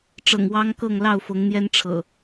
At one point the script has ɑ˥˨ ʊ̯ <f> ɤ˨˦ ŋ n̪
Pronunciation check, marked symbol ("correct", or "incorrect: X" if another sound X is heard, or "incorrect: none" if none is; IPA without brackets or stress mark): correct